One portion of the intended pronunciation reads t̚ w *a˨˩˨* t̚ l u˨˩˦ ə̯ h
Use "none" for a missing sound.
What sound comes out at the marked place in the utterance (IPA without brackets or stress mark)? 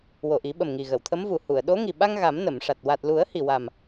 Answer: a˨˩